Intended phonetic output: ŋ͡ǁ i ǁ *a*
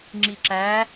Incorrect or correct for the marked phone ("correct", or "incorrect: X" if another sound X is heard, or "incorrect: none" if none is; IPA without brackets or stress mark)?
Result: incorrect: æ